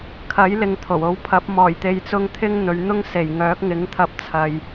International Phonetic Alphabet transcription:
kʰɐ˨˥j lɪ˨ŋt̪ʰo˨˩wo˨˥w pʰɐ˨˥p̚ mɔː˨˩jt̪e˨jt͡sʊ˧ŋ t̪ʰɪ˥ŋn̪ɵ˨˧ɥn̪ʊ˥ŋ se˨˩j ŋœː˨˥k̚ŋɪ˨˥ŋt̪ʰɐ˧p̚t͡sʰɐ˨j

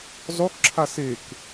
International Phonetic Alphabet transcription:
zˤokǁʰa sek

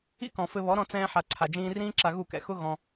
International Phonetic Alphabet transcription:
ḭ˦kɔ̃˨fɘ˧βɔ˨˦ ɾɔ̃˧t͡sɛ̃ː˧ ħa˨ ǀʰa˨d͡ʒĩː˧rĩː˦ ǁa˧ɣu˦˨kɛ̰˨ xʊ˦ ɣɔ̃˧

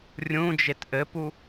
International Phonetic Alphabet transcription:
rʲũd͡ʒet ʔɘpu

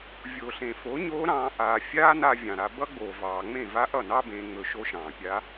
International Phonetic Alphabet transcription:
vʲo˨ɬẽ˨ fo˨˦ɲoː˦ ɾɑ̃ː˧ ʔaː˨ fʲaː˦na˧ vʲɑ̃˨ɾa˧ bʌ˦ɡ͡boː˨vɑː˨ ŋ͡mẽ˦˨va˦ʔʌ˦˨nɑ˦ bẽː˧ŋ͡mɵ˧ʃo˦ ʃɑ̃ː˨pʲa˦

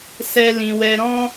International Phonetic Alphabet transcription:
sɛ˦lĩ˧ wɛ˧ɾɔ̃˦

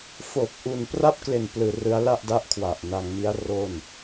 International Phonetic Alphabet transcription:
fo˨˩k̚ ʔu˨˩npra˦˥p̚kle˨˩n plɯː˧rɯ˦˥a̯ la˥˩ʔda˦˥ʔkʰwa˨˩ʔ na˧ŋmi˦˥a̯ro˥˩n

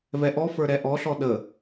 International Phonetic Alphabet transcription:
vɛʔɔfə˞ ɾɛʔɔɬɔ ɗə

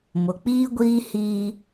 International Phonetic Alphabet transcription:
mʊ˨k͡piː˦ɡʷiː˦ hiː˦

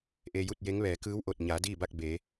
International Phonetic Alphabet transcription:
ʔe˧ju˥˨t̚je˧˥ŋ ʋɛː˩˧kɯː˧˥wʔo˧˩t̚ ɲa˩˧ diː˥˨ba˥˨k̚ beː˩˧

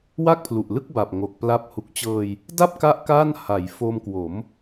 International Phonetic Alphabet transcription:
wa˥˩k̚pʰlu˨˩ʔlɯ˥˩k̚ba˨˩p̚ ŋo˨˩k̚pla˦˥p̚ hu˨˩k̚t͡ɕɤː˧j | da˥˩p̚ka˦˥ʔ ka˥˩nha˩˦j fo˧mkwo˩˦m

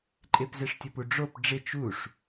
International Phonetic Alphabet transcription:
ǃʼɪpzeʂtʲʊpu ɖ͡ʐop ɖ͡ʐɪ t͡ʃuʂ

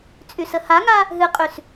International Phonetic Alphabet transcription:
t͡sʼysəhaŋa | ɦɨqʼys

